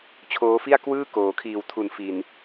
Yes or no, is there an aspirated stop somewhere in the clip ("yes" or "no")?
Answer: yes